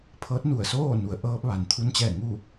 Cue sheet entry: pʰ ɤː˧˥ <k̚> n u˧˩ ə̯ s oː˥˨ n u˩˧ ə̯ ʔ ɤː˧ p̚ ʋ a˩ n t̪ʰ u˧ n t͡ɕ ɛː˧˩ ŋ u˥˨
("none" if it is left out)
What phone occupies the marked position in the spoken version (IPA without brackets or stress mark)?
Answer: t̚